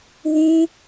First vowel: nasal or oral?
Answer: nasal